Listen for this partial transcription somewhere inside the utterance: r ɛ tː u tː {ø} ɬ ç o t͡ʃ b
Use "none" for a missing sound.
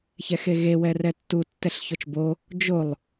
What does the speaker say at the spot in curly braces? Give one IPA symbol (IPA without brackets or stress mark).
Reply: ɛ